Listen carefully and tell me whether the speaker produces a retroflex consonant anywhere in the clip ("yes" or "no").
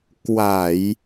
no